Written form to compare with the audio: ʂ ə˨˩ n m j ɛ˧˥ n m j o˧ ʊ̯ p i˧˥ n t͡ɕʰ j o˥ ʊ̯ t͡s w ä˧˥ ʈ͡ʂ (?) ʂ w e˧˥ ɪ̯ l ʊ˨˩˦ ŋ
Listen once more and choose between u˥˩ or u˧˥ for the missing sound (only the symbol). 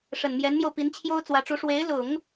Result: u˧˥